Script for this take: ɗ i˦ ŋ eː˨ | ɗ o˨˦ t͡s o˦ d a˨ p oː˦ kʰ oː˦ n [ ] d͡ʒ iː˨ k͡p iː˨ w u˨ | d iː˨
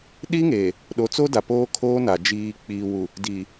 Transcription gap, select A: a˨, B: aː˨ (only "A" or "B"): A